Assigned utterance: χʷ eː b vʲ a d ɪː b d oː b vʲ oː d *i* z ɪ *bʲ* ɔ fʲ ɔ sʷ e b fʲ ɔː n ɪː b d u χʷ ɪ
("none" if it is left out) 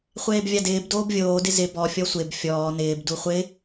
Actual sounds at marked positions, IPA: ɪ, b

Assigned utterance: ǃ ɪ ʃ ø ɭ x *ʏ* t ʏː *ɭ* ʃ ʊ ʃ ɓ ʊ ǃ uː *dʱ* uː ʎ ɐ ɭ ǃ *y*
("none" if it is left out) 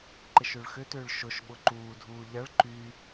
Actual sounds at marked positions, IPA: ʏ, ɭ, dʱ, y

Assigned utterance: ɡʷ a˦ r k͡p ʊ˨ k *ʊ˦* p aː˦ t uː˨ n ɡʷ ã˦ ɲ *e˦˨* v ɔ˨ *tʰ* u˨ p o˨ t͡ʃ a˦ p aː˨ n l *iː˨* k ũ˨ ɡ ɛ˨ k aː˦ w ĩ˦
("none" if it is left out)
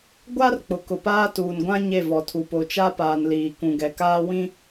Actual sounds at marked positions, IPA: ʊ˨, e˦˨, tʰ, iː˨

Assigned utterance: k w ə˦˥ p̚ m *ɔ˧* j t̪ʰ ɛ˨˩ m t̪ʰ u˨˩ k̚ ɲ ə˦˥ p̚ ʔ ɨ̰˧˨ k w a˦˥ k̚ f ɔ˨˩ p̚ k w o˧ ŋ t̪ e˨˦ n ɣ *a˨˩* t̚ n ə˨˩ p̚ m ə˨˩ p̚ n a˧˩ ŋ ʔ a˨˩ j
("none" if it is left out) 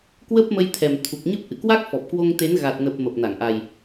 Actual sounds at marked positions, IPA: ə˧, a˨˩

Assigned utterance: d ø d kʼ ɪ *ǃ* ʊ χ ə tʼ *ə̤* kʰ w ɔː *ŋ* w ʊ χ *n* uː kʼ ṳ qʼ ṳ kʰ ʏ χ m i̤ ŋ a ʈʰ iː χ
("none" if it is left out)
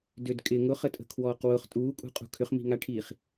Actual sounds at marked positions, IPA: ŋ, ə̤, q, tʼ

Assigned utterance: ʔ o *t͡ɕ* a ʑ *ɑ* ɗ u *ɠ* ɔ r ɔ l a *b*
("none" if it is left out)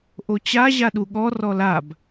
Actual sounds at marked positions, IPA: t͡ɕ, a, ɠ, b

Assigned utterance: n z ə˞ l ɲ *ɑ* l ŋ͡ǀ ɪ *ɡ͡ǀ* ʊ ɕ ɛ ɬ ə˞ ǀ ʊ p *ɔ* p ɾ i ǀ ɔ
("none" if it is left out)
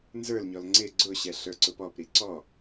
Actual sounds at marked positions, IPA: ɔ, ɡ͡ǀ, ɔ

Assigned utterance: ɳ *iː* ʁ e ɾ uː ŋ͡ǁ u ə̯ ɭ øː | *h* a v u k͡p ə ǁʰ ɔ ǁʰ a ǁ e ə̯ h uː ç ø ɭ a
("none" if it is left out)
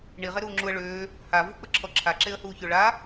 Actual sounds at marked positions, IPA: i, h

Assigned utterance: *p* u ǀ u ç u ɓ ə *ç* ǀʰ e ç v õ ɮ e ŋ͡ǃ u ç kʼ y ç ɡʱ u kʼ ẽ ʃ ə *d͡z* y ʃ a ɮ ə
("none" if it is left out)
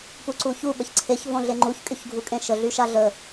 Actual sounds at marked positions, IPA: p, ç, ɮ

